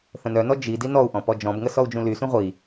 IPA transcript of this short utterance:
θə̃nœnɔ d͡ʒi dinɔu̯ʔɔ̃ pɔd͡ʒɔ̃bŋə sɔu̯d͡ʒũlysũ ʁʷi

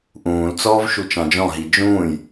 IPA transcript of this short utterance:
ʔũːlt͡sɔːvʃu t͡ʃɑ̃d͡ʒɔ̃ɦi d͡ʒũːj

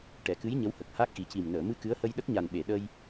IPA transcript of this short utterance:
ʈɛ˨˩˨kɨ˧˥j ɲə˧˥whə˨˩k̚ha˦˥k̚ ʔi˨˩˦ci˨˩m nəː˨˩˨ mɨ˧ kɨ˧˥ə̯hə˧jɗə˦˥k̚ ɲa˨˩nɓe˨˩˨ɗə˧j

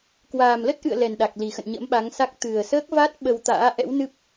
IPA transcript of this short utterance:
kwaː˨˩mlə˦˥t̚ʔɨ̰˧˨ə̯ lɛ˨˩nɗa˨˩k̚li˨˩xə̰˧˨n ɲə̰˧˥mɓa˨˦ŋsa˦˥k̚ t̪ɨ˨˩ə̯səː˦˥k̚va˦˥t̚ ɓə˧wt̪a̰ː˧˥ ʔɛ̰˧˥wnɨ˦˥p̚

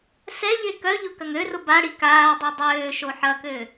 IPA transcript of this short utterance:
sɛʎe kœʎʊ kɐŋørʊ baɽi kaːdˤe dˤøː ʃoħɐkø

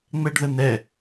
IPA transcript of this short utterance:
ŋ͡mɛɖðən̪ɛ

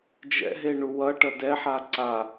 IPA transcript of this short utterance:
d͡ʒɛ̰ɦeɳu wʌʈʌ dɛħa ǀa

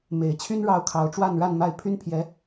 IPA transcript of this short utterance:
me˨˩ɪ̯t͡ɕʰy˥n ɻɑ˥ʊ̯kʰɑ˧˥ʊ̯ ʈ͡ʂwa˥˧nɻa˥˧nma˥˩ɪ̯ pʰy˥npʰjɛ˧˥

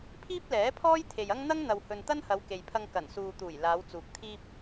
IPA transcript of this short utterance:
pʰiː˥p̚lɛː˨˥pʰɔː˥j t̪ʰe˨jɐ˥ŋ n̪ɐ˥ŋ n̪ɐ˧whɵ˧n t̪ɐ˥nhɐ˨˧wke˨jpʰɐ˧ŋ kɐ˨˩nsuː˨t̪uː˨˩j laː˨˧wt͡suː˨k̚t̪ʰiː˥p̚

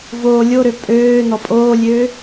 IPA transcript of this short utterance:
voː lʲoɾø pʼøː nɔpʼoːlʲøː

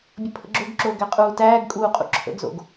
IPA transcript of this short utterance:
bʲəpʰə̰ɡ͡ǁoɡǁoː ɡæqʼuːtæːɡkʼuː qʼṵǁʰə̰ɡzo̰ɡ

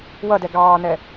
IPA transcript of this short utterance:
wʌdɛ ɡɑːnɛ

